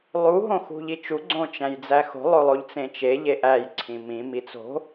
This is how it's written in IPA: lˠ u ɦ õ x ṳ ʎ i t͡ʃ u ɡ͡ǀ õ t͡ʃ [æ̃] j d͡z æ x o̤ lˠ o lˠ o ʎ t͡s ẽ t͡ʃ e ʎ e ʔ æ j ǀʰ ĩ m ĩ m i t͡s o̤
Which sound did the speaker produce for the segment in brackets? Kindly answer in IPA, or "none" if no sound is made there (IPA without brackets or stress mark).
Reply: æ̃